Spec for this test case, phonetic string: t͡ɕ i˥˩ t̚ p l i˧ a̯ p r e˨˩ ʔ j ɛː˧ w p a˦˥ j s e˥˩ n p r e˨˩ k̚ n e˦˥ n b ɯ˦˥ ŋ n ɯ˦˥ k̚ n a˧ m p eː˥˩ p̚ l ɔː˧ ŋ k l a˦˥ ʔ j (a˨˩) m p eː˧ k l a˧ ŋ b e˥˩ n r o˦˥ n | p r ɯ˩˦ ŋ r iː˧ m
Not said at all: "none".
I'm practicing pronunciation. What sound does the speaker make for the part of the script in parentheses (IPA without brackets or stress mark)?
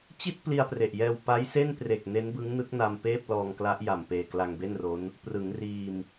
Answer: a˨˩